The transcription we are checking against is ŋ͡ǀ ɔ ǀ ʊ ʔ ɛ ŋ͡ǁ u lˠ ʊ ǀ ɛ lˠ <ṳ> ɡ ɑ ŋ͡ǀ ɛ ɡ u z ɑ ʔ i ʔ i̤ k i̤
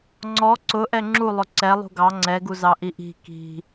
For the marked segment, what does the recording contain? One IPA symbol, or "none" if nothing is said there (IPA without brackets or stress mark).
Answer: ṳ